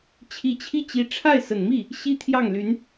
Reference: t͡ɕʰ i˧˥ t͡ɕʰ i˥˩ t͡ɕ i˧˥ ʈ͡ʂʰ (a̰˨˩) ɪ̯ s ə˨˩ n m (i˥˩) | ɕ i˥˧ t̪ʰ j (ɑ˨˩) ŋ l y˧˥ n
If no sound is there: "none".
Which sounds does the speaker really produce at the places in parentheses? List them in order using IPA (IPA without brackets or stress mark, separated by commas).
a˥˩, i˥˩, ɑ˥˩